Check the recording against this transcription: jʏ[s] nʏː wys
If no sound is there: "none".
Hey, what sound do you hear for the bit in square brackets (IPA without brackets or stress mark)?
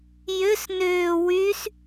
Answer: s